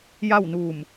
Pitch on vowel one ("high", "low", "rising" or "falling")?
falling